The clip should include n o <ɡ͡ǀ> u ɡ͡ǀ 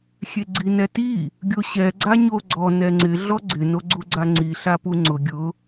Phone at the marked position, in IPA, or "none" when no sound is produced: ɡ͡ǀ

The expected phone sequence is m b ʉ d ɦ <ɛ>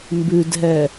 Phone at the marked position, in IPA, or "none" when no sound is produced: ɛ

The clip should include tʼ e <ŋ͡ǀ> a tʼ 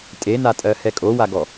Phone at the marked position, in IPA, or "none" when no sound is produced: n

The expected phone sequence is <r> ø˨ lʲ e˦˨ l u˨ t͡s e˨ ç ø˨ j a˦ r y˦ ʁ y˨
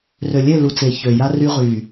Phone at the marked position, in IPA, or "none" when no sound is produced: r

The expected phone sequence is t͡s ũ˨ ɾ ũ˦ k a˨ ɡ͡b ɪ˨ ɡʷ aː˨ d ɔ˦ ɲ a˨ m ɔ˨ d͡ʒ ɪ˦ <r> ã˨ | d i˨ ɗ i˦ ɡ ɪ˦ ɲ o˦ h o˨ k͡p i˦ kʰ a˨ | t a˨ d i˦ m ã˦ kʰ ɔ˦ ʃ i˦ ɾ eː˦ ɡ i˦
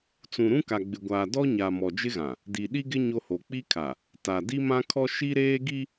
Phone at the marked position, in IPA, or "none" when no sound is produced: ɣ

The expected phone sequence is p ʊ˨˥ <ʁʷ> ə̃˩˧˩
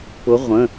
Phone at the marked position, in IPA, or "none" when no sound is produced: ʁʷ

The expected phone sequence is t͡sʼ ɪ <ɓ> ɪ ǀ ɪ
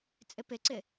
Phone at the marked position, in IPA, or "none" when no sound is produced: p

